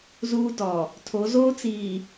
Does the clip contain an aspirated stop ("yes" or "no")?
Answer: yes